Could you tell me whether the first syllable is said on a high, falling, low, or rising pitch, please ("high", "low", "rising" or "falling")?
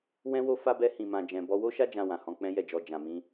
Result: high